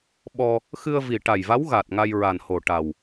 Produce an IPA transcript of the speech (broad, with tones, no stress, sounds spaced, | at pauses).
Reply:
ɓ ɔ˧ | x ɨ˧ ə̯ v i˨˩ ʈ a˨˩ j v a˧˥ w ɣ a˨˩ t̚ ŋ a˧ j ɹ a˨˩ n h o˨˩ ʈ a˨˩ w